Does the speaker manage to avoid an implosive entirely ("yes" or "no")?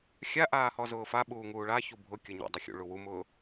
no